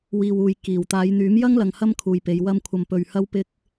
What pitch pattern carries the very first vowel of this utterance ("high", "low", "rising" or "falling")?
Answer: low